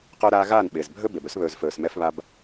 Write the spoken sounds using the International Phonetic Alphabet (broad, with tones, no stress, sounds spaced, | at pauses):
q ɵː˦ ɾ aː˦ ɣ aː˦˨ n ɓ ɪː˨ z bʱ ɵ˦ b e˨ b ɵ˦ s β ɵː˨ z f ɵː˨ s m ɛ˦ f β a˦ b